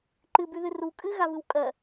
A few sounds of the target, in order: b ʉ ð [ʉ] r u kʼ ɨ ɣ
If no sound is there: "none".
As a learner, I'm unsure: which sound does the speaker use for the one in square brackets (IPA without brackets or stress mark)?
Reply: ɨ